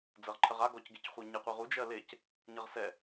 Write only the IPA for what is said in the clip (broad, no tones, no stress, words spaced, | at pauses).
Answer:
d͡zɜʁǃʰɜʁa ɡɔcɡecχʷə˞ɲe qʷeʁu d͡ʒɜlec | ɲʌʁsɛ